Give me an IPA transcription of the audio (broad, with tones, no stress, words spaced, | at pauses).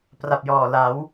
pra˨˩p̚jɔː˨˩la˩˦w